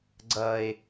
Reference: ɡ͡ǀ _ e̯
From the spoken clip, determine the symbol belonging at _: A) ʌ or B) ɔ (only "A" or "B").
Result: A